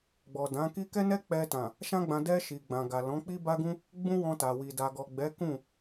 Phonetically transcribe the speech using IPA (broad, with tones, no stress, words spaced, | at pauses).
ɡ͡bɔ˨dã˨˦ki˦ kɛ˦nɛ˦k͡pɛ˧tã˨ | ʃã˦ɡ͡bã˧ dɛ˧ ʃi˨ɡ͡bã˨ɡa˨ lɔ̃˨˦ k͡pi˦ba˦ɡũ˦ | ɡ͡bũ˦wɔ̃˧ta˨wi˨ da˨ɡɔ˨ɡ͡bɛ˨˦ kũ˦˨